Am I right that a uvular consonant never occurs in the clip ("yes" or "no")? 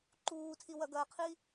no